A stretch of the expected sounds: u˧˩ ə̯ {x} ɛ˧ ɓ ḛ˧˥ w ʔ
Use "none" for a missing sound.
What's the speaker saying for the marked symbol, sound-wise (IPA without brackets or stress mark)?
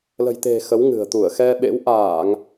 x